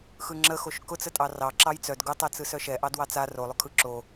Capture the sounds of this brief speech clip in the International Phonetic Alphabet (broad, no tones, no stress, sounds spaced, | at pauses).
x ɯ ŋ͡ǁ ə x o ʃ k ʊ t͡s ə tʼ ɑ r ɑ ǁ ɑ j t͡s œ d ɡ ʊ tˤ ɛ t͡s ɯ s œ ʃ ɛ ʔ ɑ d w ɑ t͡s a r o lˠ ʊ kʰ ɯ ǁ o